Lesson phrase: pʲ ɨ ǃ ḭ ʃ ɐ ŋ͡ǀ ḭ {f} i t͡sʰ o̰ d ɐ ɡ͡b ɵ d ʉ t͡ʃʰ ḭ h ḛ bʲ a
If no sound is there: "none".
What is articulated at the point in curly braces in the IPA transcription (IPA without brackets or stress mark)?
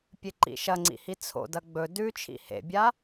h